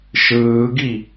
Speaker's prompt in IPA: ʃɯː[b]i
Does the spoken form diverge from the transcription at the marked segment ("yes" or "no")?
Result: yes